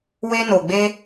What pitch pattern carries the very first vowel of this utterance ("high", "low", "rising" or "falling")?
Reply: high